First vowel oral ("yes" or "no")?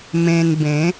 no